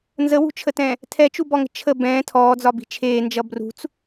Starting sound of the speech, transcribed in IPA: n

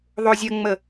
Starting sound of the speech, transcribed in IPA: ðˤ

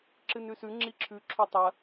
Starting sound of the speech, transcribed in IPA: ǁ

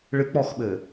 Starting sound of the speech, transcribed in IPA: ɭ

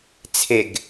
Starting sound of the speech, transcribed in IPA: t͡sʰ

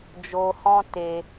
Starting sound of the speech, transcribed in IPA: d͡ʒ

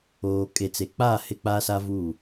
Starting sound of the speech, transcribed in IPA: oː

